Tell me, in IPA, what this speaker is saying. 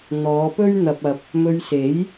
n̪ ɔː˨˧ p ɵ˥ ɥ n̪ ɐ˧ p̚ ɐ˧ p̚ | m ɵ˧ ɥ s e˨˥ j

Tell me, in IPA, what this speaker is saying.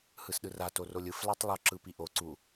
h ɯ s ɗ ɯ r a t o r o lʲ ɯ f l a tˤ lˠ o ǁ ɯ p i ʔ o ǀ u

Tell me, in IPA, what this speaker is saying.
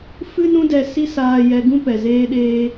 f ɨ˦ n ũ˦ d ɛ˧ s i˦ s aː˧ j ɛ˧ ɡ ũ˦ p ɛ˨ z eː˦ ɗ eː˦

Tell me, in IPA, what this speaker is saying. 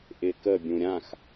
ʔ ɪ k ə bʲ ũ ɾʲ ã x

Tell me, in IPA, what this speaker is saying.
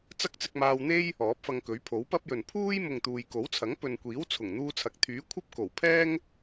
t͡s ɐ˥ k̚ t͡s ɪ˧ k̚ m aː˧ w n̪ e˥ j | ɔː˨˥ p̚ f ɐ˧ ŋ k ɵ˨˥ ɥ pʰ o˨˥ w p ɐ˥ p̚ j ɵ˨ n pʰ uː˥ j m ʊ˨ ŋ t̪ uː˨ j k o˨˥ w t͡sʰ ɐ˨˥ ŋ p ɵ˨ n kʷ iː˨˥ w t͡sʰ ʊ˨˩ ŋ n̪ uː˧ t͡sʰ ɐ˨˥ k̚ t̪ʰ yː˨˥ kʷʰ ɐ˥ p̚ k o˨˩ w pʰ ɛː˥ ŋ

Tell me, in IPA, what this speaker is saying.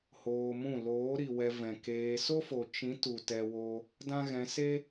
h oː˧ m ũ˦˨ l oː˨˦ ɾ i˨ w ɛ˧ v ɛ̃˨ k eː˧ s o˦ f o˨ t͡ʃ ĩ˨˦ t u˨ t ɛ˧ w o˧ | d ã˦ ɣ ɛ̃˧ s e˦

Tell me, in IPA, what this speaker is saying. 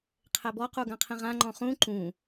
qʰ ɛ b ɔ q u ɡ ã qʰ ĩ ʁ ã ŋ͡ǃ ɔ̃ χ ũ ǃ ũ

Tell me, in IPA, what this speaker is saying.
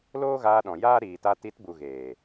l oː˦ ɣ aː˧ ɗ ɔ̃˨ j aː˦ ɾ iː˨ t a˧ t i˨˦ t b u˨ ɣ eː˨

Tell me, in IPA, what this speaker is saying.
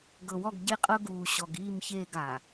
ɡ ɤ˨ w ɔ˦˨ ɡ ɟ e˦ qʼ ɤ˦ ɡ uː˨ ɕ ɔ˨ ɡ iː˦˨ m ç eː˦˨ ɡ a˨

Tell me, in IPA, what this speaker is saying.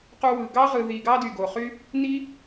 q u˧ w ɯ˨ ɡ ɑ˦ ʁ ɯ˧ ð i˧ ɡ ɑ˦ d y˨ ɡ o˨ χ y˦ | n i˦

